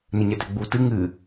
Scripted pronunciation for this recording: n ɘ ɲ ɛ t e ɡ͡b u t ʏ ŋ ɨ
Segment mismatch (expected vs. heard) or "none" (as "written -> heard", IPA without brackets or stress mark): ʏ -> ɨ